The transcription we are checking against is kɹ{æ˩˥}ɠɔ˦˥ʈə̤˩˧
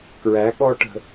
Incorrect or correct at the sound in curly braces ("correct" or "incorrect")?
correct